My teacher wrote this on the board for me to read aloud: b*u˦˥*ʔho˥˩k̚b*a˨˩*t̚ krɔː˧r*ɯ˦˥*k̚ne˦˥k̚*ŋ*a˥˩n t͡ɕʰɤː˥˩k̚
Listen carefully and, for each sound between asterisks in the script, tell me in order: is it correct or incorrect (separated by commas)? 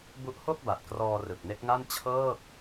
correct, correct, incorrect, correct